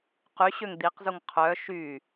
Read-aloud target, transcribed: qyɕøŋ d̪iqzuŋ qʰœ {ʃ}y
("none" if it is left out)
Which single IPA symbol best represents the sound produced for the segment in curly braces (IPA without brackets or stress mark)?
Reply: ʃ